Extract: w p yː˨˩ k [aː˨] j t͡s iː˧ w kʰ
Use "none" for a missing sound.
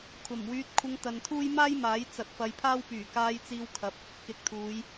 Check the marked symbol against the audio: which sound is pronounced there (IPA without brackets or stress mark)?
aː˧